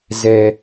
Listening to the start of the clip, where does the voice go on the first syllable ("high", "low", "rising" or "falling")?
high